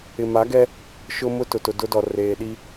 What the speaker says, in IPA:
ɪ˨ma˨˦ɡɛ˦ | ʃʊ˦mʊ˦ tʊ˨tʊ˨dʊ˦dɔ˨ reː˨ɗi˦

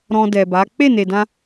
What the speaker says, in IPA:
ɾɔ̃˧ dɛ˨ba˨˦ k͡pe˦˨ne˨dã˧

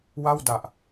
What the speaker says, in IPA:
wa˥˩wda˨˩ʔ

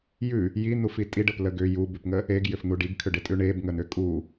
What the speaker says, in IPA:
jʉ | jin̪ufi tʼiɖəplə ɡʏ jubʉpŋə | eɡjʏfn̪u ɖiɡkʰʏɖetʼʉ ɳebŋən̪ʏ kʼu

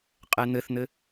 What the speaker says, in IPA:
qʼɛn̪ɘθn̪ɘ

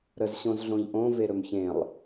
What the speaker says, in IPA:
ɾəz ɕõzɮõʎʔõ veɾɵmçẽlˠ

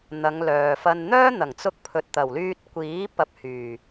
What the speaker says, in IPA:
n̪ɐ˨˧ŋlœː˨fɐ˧n n̪œː˥n̪ɐ˨˩ŋt͡sʊ˧k̚pʰɵ˨t̚ t̪ɐ˨˩wlyː˧t̚kʷiː˨˥ pɐ˧p̚hyː˨˩

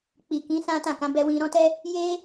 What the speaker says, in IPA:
k͡pi˨kĩ˨˦ sã˦tã˦˨ kã˨˦bɛ˧wĩ˧ ɾɔ̃˦tɛ˦ | je˦

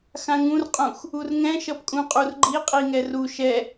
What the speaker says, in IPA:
xãŋũrqʼũx | urŋɛ̃ʃʌp kʼũqʼurɡ͡ǃi qʼiŋɛru ʃɛ

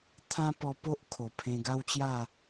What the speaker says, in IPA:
t̪ʰã˦pɔ˧po˦ʔ kʰo˨˩pʰẽ˧ɡa˦wt͡ɕja˥˧

